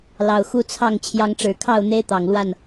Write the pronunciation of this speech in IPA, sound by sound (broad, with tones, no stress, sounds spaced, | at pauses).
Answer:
l ɑ˨˩ ʊ̯ x u˥˨ t͡sʰ ɑ˥˨ ŋ t͡ɕʰ j ɑ˨˦ ŋ ʈ͡ʂ ɻ̩˨˩ kʰ ɑ˥˨ ʊ̯ n̪ e˦ ɪ̯ t̪ ɑ˨˩ ŋ l w a˥˨ n